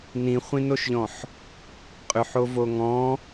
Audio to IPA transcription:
n ĩ χʷ ĩ n o ʃ ʎ ɔ̃ ħ | qʼ ʏ ħ o v o ŋ ɔ̃

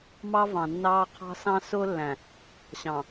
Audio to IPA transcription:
m ɑ˦ v ɑ̃˨ nː ɑː˦ qʰ ɑ̤˦ s ɑ̃˦ s ʊː˦ lː æ̃˨ | ɕ ɑ̃˨

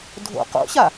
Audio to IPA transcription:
dʱ o̰ q o̰ ɕ a

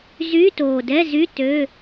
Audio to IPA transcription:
z yː˧˥˧ t oː˨˩ d ɛ˧˥˧ z y˧˥˧ t ø˧˥˧

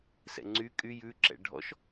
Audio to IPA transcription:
s ɛ̰ ŋ͡ǀ y kʼ y j ʉ ǁ ɛ̰ ɖʱ ɔ̰ ʃ

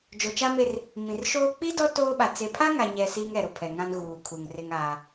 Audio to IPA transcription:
d͡ʒ o˨ t͡ʃ a˦ m e˦ r | m ĩ˨ r ʃ oː˦ k͡p i˦ d ɔ˦ t oː˦ ɓ a˨ t͡s e˨ pʰ a˦ ŋ a˨ ɲ ɛ˨ s iː˦ ŋ ɛ˨ ɾ ʊ˨ pʰ ɛ˨ ŋ ã˦ n ɣ uː˨ kʰ u˨ ŋ r ɪ˦ ŋ aː˦

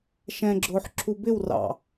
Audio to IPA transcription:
ʃ ɛ̃ ɡ͡ǁ ʊː ħ ǁʰ u b ɪ w r ɑ̰

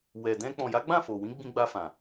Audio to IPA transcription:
w ɛ˨ d ɛ̃˧ k͡p ɔ̃˨ j a˨˦ ɡ͡b ã˦˨ f o˨ w ĩ˨˦ ɡ͡b ĩ˧ ɡ͡b a˧ f ã˨

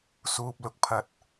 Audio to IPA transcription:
s uː˨ p̚ l ʊ˧ k̚ pʰ ɐ˨ t̚

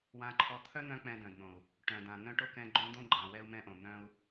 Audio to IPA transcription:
w ã˦ ǃʰ ɔ˦ t̪ʰ œ˦ n̪ œ̃˧ k͡p ɛ̃˧ d œ̃˨ d n̪ õ˨ u̯ | ʈ œ̃˨ d ã˨ n̪ œ̃˦ ʈ o˦ k ɛ̃˧ ɡ͡ǃ õ˦ d̪ õ˦ ɡ͡ǃ ã˨ w ɛ˧ u̯ m ɛ̃˧ ʔ õ˨ n̪ œ̃˦ u̯

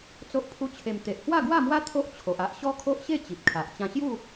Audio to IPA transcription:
t͡s o˦ ʔ pʰ u˦ t͡ɕʰ e˧ m t̪ e˨ ʔ h w a˥˧ ɡ w a˥˧ m w a˦ t̪ʰ o˦ ʔ t͡ɕʰ o˨ ʔ a˦ ʔ ɕ ɔ˦ kʰ o˦ ʔ ɕ e˥˧ t͡ɕ i˨ p̚ kʰ a˨ ʔ t͡ɕ ã˧ ɕ j u˥˧

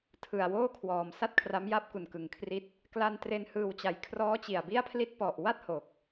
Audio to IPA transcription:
tʰ ɯ˨˩ a̯ w oː˥˩ kʰ w ɔː˨˩ m s a˥˩ t̚ kʰ r a˦˥ m j a˥˩ p̚ k u˨˩ n k ɯ˨˩ ŋ kʰ r i˦˥ t̚ | k l a˧ n t r e˧ n h ɯː˨˩ w t͡ɕ a˩˦ j kʰ r ɔː˦˥ t͡ɕ i˨˩ a̯ b i˥˩ a̯ pʰ l i˥˩ t̚ p ɔ˨˩ ʔ w a˥˩ t̚ h o˨˩ k̚

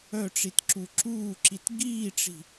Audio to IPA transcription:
œ ʈ͡ʂ i t ǁ u ǁ uː ǁ i t ɡ iː ʈ͡ʂ i̤

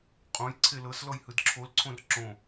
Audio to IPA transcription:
qʼ õ j ǀʰ e l ɤ s l ɔ j h ɯ d ǁʰ o l ǀʰ õ r ǁ õ

